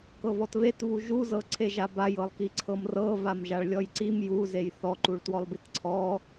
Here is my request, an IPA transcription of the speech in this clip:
k ɤ v ɔ t v e t v u ʒ u z ɤ ǀʰ e ʒ a b a j ɤ lˠ k i ǀʰ ɤ m r ɤ v a m ʒ a ɭ lʲ ɔ j ǀ i m j u z e j θ ɔ ǃ u ɭ t w ɔ lˠ b i t ǀʰ ɔ

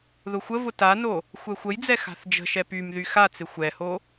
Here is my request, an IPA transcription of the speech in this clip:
ð ʊ xʷ ə v ʊ t a n o | xʷ ɛ xʷ ə j d͡z ɛ x a̤ θ d͡ʒ ə̤ ʃ ɛ p y m ð y x a t͡s ɪ xʷ ɛ h o

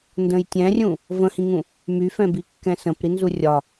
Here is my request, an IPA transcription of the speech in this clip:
n d ə̃ j tʲ ɛ̃ rʲ ũ | v ə̃ h ĩ ŋ ũ | m y f ɛ̃ b i kː ɛ̃ s ə̃ p ɾ i n z u rʲ ɒ

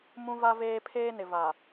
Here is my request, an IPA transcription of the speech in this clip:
m ũ˦ v a˦ v eː˦ pʰ eː˦ n ɪ˨ v a˨

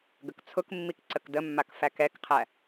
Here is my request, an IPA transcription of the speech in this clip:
ɡ ə k t͡sʰ ʊ k mː i k ǀ ə k d ə mː a k f æ k ɛ k qʰ æ

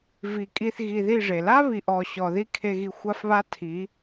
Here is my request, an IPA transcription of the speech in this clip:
v i˨ kʼ i˧ θ ɣ i˧ ð i˦˨ ʐ e˨ l a˦ β i˨ ʔ ɔ˨ ɕ ɔ˨ ð i˦ kʰ e˧ ɣ i˧ xʷ a˦ f β a˦ tʰ i˨˦

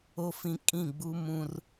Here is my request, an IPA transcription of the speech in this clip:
o˦ f ĩ˦ kʼ ĩ˦˨ ɡ͡b u˦ m ũ˦ r

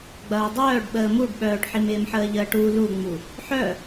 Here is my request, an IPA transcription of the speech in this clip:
ɡ͡b ɐː dˤ œː ɖ ɓ əː m u ɖ ɓ œː ɖ ħ i m ɪː m ħ əː ʎ əː ʈ u l u ŋ͡m u | ħ œ

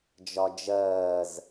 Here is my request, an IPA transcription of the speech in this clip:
d͡ʒ ɒ d͡ʒ ɜː z

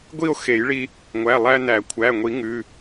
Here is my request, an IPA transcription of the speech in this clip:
ɡʷ i˥˧ o̯ x e˨˩˦ j ɭ i˧ | ŋʷ æ˩˧˩ lˠ æ˧ n æ˨˩˦ kʷʰ æ˩˧˩ ŋʷ i˨˩˦ ŋ ʉ˩˧˩

